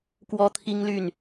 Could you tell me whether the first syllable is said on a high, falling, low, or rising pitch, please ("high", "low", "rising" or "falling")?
high